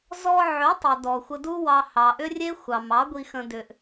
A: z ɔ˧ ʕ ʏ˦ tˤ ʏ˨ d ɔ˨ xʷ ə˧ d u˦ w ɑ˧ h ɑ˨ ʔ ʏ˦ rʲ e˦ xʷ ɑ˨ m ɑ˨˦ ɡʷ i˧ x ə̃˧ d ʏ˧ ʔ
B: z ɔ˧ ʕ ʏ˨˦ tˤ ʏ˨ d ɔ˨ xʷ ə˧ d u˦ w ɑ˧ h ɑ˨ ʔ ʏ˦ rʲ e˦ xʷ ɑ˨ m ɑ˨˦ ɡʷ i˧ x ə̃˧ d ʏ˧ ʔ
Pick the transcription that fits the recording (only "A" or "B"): B